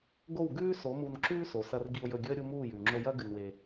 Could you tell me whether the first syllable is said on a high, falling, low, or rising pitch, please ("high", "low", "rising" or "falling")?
falling